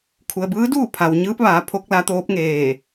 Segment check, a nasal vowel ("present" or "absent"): absent